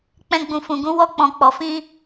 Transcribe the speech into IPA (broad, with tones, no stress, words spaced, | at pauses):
k͡pɛ̃˧ɡ͡bũ˨fũ˨ɡũ˨˦ wɔ˧k͡pɔ̃˨k͡pɔ˨ fĩ˧